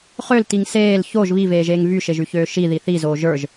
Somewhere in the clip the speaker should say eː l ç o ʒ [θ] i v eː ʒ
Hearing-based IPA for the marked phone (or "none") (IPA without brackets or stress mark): β